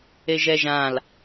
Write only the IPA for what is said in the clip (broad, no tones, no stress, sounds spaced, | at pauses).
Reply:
e ʒ ɛ ʒ ã l